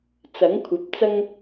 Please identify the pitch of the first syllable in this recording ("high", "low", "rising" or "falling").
rising